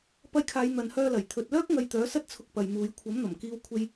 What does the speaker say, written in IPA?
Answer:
pɐ˧jkʰaː˨˧j n̪ɐ˨nhœː˧lɐ˨˩j t̪ʰɵ˨t̚lœː˥k̚ ŋɐ˧jt̪œː˨˥sɐ˥t̚ t͡sʰʊ˧k̚pɐ˨jmuː˨˧j kʷʰɐ˨˥mn̪ɐ˨˩mkiː˧wkʷʰe˧j

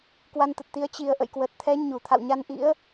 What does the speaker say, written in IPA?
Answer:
kwa˧nt̪ə˨˩t̚ t̪i˨˦ə̯ t͡ɕi˨˩ə̯ʔə̰˧˨j kwə˨˩t̚t̪ʰɛ˨˦ ɲu˧˩t̪ʰa̰˧˨wɲa˧nʔḭ˧˥ə̯

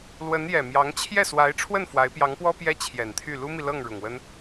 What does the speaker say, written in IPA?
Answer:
lwə˧˥n jɛ˨˩mjɑ˧˥ŋ t͡ɕʰjɛ˥˩swa˧˥ɪ̯ ʈ͡ʂʰwə˥˩n fwa˧˥ɪ̯pjɑ˧˥ŋpwɔ˥ pjɛ˥t͡ɕʰjɛ˨˩nt̪ʰy˥˩ lu˥mi˨lɤ˥˩ŋ ɻʊ˨˩ŋwə˥n

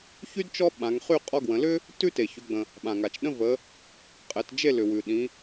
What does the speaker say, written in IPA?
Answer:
çy˥d t͡ʃɔ˥ɓã˩˧ŋχy˥˨ qʼɔ˥ɡwə̃˩˧ lʏ˥ | tʉ˥te˩çʏ˩˧ɡ͡bə̃˩ | ɓã˩ŋa˩t͡ʃ ɗə̃˥ və˩˧ | qʼɛ˩˧td͡ʒe˥˨lʏ˩ wʉ˩ɗĩ˩˧

